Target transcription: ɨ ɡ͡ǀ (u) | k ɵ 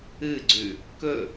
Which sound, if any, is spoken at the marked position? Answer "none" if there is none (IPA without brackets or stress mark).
ʉ